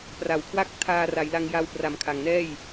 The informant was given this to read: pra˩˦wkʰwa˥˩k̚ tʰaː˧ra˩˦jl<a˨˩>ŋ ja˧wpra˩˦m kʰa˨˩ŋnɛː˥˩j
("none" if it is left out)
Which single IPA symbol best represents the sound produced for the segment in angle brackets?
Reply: a˧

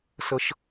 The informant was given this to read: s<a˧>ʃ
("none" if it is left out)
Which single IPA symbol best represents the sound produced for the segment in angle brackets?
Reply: ə˧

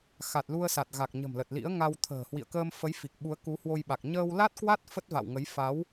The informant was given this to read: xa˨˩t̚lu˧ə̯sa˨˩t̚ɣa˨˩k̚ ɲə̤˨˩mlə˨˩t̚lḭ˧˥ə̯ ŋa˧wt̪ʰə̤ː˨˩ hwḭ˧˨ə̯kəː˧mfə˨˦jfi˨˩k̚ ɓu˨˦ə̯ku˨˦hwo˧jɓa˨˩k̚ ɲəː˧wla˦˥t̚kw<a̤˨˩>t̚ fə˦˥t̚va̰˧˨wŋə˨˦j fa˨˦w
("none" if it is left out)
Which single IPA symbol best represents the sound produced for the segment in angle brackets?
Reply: a˦˥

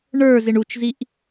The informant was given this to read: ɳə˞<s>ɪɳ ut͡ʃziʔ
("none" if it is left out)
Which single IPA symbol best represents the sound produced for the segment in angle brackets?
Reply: z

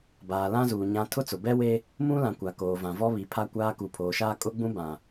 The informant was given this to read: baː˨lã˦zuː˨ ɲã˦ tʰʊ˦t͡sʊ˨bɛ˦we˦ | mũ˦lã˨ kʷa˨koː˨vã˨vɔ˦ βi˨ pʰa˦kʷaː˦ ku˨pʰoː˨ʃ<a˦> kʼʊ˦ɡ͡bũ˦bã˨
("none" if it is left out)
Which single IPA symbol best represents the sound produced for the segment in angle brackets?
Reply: aː˦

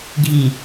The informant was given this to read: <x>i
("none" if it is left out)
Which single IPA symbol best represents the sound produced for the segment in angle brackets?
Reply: ɡʱ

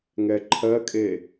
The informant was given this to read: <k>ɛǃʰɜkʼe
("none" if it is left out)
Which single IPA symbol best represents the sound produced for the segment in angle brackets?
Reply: ŋ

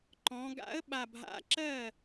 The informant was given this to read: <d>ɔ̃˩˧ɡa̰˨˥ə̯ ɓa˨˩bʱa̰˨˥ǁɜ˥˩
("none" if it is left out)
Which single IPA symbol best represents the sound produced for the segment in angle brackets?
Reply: ǃ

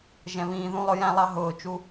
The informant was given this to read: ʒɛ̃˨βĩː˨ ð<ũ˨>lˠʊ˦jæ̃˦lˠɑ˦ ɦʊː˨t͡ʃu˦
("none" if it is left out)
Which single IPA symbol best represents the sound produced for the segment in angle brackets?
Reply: ũ˦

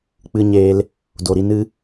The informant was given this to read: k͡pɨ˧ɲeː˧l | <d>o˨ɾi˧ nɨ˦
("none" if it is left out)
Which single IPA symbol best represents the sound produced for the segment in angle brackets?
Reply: d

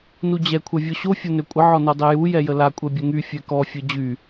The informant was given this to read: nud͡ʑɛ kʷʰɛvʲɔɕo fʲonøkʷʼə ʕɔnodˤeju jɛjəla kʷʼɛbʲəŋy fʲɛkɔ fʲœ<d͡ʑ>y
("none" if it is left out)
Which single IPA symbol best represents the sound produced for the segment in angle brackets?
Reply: d͡ʑ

